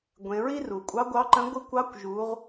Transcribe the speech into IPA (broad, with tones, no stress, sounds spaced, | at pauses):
ɡʷ ẽ˩˧ ɹ i˥ r u˩ kʷʼ ɑ˧˥ ɡʷ ɑ˧˥ ǃ ə̃˧˥ ɡʷ ɨ˧˥ kʷ ɑ˧˥ kʷ ʒ u˩˧ ʁ